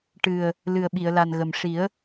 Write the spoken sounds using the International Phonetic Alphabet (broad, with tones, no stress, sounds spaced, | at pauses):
ʈ ɨ˨˩ ə̯ | l ɨ˨˩ ə̯ ɓ i˨˩˨ ə̯ l a˨˩ n ɣ ə˨˩ m ʂ i˨˩˦ ə̯